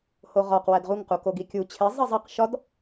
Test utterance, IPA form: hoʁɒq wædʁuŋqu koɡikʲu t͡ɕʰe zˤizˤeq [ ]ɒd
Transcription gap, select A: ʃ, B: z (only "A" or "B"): A